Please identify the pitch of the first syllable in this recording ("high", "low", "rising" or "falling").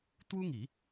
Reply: high